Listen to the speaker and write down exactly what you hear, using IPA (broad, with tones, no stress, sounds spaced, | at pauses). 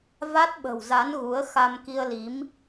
v a˦˥ t̚ ɓ ə̤˨˩ w z a˨˦ n ɣ u˨˦ ə̯ x a˧ m k i˧ ə̯ l i˨˦ m